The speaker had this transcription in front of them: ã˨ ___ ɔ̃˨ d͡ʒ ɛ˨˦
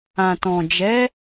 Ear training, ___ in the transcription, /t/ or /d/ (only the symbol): t